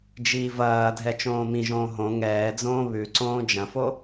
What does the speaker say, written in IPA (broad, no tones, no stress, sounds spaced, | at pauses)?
d͡ʒ iː v ɐː dʱ ɛ t͡ʃ õː m ĩ ʒ õː ɦ õ ŋ ɛː d͡z õː β ʉ ǀ õː d͡ʒ ɐ̃ f o